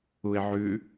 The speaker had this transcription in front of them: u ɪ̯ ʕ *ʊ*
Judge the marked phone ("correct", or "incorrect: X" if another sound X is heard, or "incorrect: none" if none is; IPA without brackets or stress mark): incorrect: ʉ